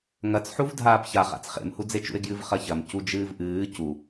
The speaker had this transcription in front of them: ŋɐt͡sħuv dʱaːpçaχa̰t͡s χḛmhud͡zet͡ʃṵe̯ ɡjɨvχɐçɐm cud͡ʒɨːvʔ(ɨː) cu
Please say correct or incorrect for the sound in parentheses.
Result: correct